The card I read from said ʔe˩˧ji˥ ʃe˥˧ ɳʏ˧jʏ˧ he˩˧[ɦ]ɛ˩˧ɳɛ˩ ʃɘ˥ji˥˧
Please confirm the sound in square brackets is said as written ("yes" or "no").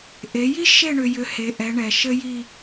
no